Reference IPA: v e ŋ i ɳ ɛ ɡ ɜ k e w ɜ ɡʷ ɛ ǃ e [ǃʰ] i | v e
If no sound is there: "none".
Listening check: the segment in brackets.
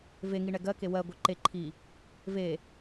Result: ǃʰ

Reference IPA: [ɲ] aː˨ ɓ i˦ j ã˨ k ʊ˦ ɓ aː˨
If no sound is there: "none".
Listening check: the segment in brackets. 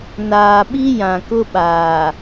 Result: n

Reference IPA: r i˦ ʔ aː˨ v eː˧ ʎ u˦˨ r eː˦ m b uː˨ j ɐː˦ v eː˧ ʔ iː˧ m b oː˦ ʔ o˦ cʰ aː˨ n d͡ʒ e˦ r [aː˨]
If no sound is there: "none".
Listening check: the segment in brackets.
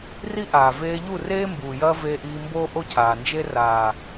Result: aː˨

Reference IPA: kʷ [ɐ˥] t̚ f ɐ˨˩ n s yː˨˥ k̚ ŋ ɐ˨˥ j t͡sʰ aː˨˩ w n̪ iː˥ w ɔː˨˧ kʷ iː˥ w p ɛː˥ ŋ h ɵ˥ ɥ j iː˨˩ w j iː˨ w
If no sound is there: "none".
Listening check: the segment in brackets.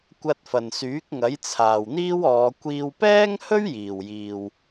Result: ɐ˧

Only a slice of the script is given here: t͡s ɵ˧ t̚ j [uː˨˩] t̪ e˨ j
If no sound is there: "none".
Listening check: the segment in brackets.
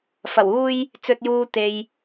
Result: uː˧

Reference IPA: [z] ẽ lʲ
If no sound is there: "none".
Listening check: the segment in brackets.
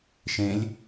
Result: ʃ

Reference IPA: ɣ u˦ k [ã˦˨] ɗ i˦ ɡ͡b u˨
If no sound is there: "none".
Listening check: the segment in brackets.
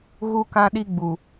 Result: ã˦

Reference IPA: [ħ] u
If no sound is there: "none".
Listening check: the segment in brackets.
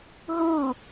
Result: ɦ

